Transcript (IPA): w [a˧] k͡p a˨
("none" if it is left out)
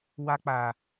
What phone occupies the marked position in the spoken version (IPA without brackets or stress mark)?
a˧